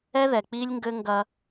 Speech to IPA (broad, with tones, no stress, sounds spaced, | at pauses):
ɛ˦ ð ɛ˨ k͡p i˦ lʲ ŋ ɡ ɘ˦ ŋ ɡ ɐ˦